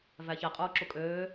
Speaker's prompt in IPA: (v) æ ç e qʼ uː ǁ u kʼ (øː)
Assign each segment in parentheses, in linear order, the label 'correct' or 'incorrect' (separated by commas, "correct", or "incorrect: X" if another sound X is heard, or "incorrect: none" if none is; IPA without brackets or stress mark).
correct, correct